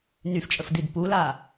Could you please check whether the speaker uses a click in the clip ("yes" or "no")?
no